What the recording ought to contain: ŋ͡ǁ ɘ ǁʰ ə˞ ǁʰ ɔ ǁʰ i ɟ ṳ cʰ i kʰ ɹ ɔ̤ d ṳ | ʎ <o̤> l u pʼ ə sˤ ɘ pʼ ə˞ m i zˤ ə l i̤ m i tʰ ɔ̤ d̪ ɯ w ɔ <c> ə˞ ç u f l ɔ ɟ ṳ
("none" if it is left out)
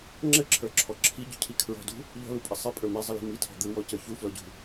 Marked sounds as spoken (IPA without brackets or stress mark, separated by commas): ɔ̤, c